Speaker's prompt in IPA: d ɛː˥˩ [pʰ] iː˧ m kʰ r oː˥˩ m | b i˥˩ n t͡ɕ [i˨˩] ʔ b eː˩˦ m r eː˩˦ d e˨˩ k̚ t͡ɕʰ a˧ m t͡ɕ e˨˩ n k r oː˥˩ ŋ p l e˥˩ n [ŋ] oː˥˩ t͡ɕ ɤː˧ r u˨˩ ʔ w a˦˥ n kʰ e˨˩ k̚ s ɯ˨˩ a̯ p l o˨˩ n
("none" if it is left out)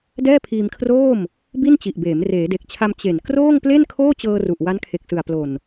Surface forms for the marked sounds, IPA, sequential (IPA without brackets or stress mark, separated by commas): pʰ, i˨˩, kʰ